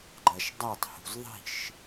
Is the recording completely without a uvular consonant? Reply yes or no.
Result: yes